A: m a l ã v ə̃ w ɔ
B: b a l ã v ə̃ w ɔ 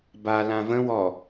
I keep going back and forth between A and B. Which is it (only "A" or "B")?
B